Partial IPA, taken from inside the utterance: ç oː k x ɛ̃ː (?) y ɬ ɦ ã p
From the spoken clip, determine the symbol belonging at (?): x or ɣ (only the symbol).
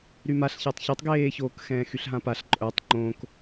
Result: x